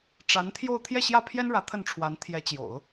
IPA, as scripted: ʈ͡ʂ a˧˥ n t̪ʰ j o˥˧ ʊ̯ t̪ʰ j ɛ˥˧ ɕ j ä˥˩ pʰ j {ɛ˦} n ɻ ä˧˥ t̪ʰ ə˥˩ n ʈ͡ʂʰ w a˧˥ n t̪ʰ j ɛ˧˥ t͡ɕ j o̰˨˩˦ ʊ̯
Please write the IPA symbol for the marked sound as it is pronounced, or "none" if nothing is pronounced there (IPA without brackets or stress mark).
ɛ˥